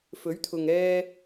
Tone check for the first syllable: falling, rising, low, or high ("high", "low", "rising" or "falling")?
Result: rising